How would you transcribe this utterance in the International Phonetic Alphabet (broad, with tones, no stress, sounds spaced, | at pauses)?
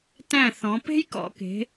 t æ̃˧˩ θ ɔ̃˩˧ p e̤˦ j k ɔ̰˩˧ k e̤˩˧